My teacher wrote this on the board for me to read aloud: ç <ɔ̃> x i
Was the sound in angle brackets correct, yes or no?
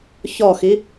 no